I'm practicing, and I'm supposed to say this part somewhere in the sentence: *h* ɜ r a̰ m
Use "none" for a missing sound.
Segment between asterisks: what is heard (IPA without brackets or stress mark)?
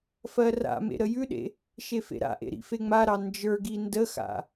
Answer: f